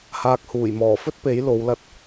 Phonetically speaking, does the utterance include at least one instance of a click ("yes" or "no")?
no